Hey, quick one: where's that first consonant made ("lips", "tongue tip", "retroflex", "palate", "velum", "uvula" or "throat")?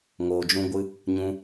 velum